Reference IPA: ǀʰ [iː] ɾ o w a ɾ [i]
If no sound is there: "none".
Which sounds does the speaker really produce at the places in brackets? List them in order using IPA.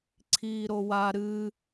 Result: iː, ɨ

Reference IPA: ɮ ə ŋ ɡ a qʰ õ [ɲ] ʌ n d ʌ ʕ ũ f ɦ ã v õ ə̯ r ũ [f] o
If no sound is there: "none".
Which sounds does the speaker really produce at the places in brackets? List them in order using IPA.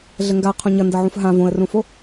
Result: ɲ, f

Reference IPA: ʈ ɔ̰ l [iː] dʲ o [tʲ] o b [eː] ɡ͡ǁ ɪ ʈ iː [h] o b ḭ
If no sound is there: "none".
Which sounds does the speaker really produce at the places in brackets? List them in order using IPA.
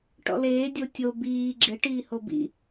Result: eː, tʲ, iː, h

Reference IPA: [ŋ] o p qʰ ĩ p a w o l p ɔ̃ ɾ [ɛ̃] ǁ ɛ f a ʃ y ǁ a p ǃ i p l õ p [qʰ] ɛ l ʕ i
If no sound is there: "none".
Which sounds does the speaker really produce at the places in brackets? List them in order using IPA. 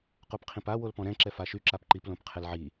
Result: q, ɛ̃, qʰ

